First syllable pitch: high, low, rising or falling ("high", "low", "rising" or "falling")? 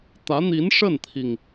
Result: rising